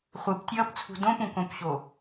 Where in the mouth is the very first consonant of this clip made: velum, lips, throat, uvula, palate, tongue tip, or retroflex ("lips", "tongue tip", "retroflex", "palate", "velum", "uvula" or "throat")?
uvula